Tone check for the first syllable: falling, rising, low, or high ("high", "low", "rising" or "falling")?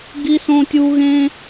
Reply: high